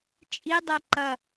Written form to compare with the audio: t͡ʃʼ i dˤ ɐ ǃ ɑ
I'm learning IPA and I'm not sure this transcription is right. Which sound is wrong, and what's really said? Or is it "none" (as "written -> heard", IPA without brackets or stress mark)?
ɑ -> ɐ